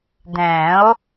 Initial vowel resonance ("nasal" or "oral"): nasal